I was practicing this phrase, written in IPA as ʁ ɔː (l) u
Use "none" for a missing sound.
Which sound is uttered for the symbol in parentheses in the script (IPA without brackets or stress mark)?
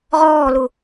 l